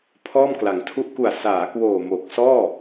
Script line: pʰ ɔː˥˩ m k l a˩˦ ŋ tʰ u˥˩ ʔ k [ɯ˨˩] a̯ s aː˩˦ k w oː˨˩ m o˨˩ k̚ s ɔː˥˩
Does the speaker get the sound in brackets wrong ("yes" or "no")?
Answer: yes